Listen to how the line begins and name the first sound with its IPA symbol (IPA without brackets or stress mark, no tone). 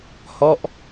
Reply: h